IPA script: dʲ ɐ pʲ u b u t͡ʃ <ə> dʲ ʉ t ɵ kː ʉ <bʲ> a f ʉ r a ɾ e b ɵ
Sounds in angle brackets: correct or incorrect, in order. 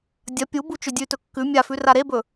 incorrect, incorrect

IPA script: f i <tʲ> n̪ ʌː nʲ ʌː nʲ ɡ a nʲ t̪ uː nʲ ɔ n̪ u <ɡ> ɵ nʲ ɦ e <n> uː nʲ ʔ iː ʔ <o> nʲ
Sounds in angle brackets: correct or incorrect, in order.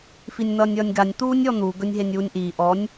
incorrect, correct, incorrect, incorrect

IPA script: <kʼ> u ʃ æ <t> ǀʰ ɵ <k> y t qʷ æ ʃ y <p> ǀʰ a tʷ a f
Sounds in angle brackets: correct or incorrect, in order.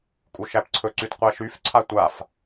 correct, incorrect, incorrect, incorrect

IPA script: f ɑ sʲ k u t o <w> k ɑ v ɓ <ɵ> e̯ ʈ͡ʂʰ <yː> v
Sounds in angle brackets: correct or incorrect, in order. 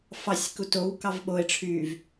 correct, incorrect, correct

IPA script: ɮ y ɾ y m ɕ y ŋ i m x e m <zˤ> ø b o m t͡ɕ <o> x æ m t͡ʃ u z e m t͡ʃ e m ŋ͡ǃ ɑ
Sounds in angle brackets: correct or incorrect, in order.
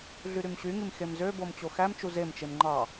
incorrect, correct

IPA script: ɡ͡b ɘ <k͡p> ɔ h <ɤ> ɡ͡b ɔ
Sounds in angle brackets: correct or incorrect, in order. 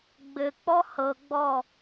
correct, correct

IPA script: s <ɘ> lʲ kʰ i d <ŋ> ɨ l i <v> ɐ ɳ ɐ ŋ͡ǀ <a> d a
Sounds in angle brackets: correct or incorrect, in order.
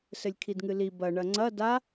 correct, correct, incorrect, incorrect

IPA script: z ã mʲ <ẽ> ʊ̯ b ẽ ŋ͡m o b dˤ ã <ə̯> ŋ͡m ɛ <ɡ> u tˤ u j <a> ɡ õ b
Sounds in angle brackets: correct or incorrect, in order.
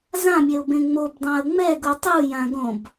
incorrect, correct, correct, incorrect

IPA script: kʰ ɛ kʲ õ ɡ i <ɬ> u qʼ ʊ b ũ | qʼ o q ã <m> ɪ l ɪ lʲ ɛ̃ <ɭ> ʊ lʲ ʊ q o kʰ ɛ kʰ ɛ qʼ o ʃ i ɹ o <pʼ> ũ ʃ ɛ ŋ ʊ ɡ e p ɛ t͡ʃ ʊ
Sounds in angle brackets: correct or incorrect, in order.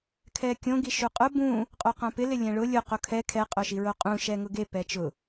incorrect, incorrect, correct, incorrect

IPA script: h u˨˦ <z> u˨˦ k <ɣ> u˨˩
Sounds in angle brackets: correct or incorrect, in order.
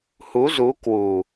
correct, incorrect

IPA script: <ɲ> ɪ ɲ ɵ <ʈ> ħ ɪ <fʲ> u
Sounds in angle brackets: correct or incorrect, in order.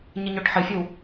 correct, correct, correct

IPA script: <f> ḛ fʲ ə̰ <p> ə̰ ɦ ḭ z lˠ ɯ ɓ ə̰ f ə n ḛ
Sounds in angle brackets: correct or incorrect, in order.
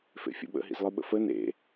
correct, incorrect

